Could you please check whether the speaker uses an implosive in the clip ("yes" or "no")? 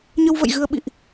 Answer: yes